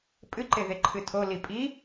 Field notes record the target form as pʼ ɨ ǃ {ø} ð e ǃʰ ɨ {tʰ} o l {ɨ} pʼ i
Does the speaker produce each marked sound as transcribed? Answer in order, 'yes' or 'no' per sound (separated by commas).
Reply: no, yes, no